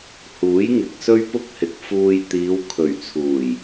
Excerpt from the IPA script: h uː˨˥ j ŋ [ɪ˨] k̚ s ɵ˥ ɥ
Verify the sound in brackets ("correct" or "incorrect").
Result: correct